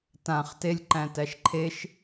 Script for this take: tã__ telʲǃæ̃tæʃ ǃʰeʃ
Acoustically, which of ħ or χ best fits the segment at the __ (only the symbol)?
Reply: χ